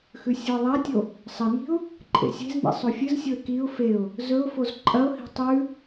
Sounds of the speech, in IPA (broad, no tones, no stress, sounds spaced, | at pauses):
x ʉ sʲ o ɪ̯ ðˤ a tʲ o | sˤ ɐ n i̤ ʊ̯ | ǃʼ ḛ sʲ e̤ z n ḭ sˤ o fʲ ɨ z sʲ o ɪ̯ k i ʊ̯ f e ʊ̯ | z ɵ ʊ̯ f o z ǃʼ ɐ ʊ̯ h i̤ tˤ ʉ